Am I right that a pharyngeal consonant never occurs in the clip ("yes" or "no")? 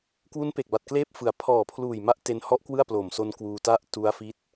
yes